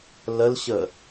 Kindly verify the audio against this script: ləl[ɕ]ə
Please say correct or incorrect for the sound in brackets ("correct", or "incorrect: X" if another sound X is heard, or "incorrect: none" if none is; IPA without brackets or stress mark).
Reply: correct